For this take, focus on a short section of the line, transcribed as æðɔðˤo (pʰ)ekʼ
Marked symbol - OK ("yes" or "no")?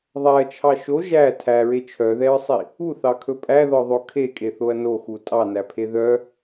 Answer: no